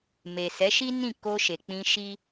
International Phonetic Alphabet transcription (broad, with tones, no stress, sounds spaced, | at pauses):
m e˨ s ɛ˨˦ ʃ i˦ n ĩ˦˨ k o˧ ʃ e˨ k͡p ĩ˧ ʃ i˦